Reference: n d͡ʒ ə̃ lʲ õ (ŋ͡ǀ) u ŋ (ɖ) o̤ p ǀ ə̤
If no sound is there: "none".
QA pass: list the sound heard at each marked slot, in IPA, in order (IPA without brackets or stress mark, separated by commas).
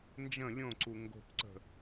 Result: ǀ, ɡ